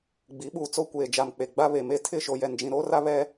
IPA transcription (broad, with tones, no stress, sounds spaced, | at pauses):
ɡ͡b i˨˦ ɓ uː˨ t͡s o˦ kʷ eː˨ d͡ʒ a˨ m k͡p e˨ ɡ͡b a˦ β e˨ m e˦ tʰ ɪ˦˨ ʃ o˨ j ɛ˨ n d͡ʒ ĩ˨ ɾ oː˦ r a˦ β ɛ˦